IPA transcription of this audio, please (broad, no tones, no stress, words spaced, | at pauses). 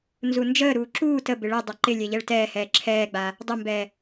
nzund͡ʒəːɾuː ǁuː təbɪ ɭɛ dˤaǃɪlʲɛ ʎɛɭtɛːhɛː ǁʰɛːɡ͡ba | dˤəmbɛ